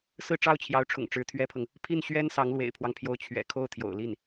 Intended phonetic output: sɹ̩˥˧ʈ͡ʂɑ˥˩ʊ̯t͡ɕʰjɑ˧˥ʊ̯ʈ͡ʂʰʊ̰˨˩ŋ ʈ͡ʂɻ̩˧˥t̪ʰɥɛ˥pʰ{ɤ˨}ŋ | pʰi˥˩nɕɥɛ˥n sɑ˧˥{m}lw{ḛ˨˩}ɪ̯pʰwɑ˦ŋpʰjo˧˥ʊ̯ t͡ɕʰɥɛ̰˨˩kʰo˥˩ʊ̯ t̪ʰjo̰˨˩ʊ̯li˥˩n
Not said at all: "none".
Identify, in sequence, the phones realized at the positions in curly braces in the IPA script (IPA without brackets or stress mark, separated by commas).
ɤ˨, ŋ, ḛ˨˩